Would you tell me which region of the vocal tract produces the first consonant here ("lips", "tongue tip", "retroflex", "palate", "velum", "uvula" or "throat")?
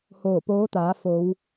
throat